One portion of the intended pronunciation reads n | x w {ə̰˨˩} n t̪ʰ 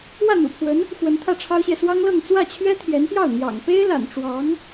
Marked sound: incorrect: ə˧˥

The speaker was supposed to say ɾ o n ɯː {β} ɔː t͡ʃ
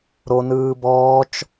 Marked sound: incorrect: b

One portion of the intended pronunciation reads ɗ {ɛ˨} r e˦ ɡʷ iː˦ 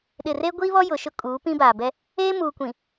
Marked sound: incorrect: ɪ˨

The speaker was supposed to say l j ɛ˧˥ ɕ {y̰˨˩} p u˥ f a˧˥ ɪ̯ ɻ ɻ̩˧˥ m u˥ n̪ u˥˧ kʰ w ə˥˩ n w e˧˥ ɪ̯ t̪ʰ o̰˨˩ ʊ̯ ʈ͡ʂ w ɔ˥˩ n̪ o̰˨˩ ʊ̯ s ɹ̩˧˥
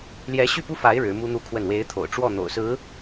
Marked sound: incorrect: y˥˩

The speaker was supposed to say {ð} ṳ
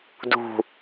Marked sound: incorrect: d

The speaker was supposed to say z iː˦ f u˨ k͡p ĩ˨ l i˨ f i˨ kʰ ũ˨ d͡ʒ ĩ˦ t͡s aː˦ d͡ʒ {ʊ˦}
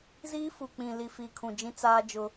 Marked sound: correct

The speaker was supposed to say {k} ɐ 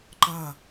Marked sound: incorrect: ǃ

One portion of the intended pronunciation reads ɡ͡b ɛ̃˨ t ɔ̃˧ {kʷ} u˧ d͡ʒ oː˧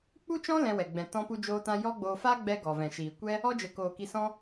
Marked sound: incorrect: p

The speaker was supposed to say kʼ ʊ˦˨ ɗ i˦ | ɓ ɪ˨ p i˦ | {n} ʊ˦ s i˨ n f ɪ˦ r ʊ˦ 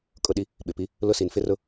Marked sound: incorrect: l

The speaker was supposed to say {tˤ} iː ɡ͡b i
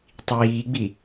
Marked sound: correct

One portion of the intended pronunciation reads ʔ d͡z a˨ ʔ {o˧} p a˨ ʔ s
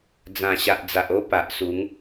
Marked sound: incorrect: o˦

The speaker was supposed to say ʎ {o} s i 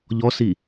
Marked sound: incorrect: ɔ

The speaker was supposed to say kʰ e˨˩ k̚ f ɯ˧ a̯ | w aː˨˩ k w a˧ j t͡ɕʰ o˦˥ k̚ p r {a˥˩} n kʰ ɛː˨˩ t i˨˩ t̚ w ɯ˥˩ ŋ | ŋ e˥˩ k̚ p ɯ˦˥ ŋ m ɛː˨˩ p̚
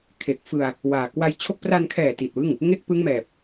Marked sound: incorrect: a˧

